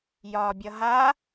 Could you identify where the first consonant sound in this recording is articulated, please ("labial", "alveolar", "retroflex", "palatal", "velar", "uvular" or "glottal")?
palatal